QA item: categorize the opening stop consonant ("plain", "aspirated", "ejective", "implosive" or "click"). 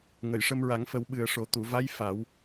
implosive